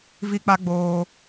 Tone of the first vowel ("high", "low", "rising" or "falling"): high